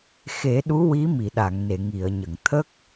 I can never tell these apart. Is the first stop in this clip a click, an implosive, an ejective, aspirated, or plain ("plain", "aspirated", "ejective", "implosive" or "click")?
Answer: implosive